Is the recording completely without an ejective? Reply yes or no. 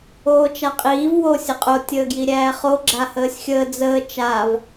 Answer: no